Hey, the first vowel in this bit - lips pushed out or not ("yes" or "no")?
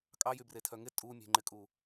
no